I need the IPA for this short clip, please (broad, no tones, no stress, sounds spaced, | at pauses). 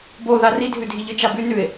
b o ð a r i dʱ ʉ dʱ i ʎ ɨ t͡ʃ a b ʉ n ʉ ɪ̯